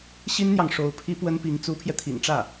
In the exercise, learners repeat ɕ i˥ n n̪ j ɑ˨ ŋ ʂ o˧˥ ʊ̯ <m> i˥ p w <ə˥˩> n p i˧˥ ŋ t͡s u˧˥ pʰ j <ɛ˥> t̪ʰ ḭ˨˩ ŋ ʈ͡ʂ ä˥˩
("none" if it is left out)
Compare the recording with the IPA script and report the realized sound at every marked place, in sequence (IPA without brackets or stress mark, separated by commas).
pʰ, ə˥, ɛ˧